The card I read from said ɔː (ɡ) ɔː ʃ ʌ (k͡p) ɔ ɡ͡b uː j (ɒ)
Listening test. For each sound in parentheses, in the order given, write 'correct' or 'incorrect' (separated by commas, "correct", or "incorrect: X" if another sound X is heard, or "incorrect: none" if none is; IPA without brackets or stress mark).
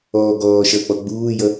correct, correct, incorrect: ʌ